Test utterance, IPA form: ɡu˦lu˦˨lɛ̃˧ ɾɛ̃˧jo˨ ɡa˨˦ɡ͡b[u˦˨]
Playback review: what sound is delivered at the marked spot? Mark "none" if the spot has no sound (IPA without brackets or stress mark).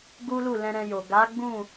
ũ˦˨